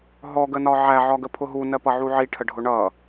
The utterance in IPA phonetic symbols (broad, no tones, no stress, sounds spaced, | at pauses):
ɦ ɔ ɡ ə n ɒ ʕ æ ʕ ɒ ɡ ə pʰ ʊ ɦ u n ɜ p ʌ ʕ u ʕ i ʈʰ ə ɖʱ ʊ ɳ ʌ